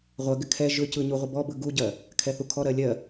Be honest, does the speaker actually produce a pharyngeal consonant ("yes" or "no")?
no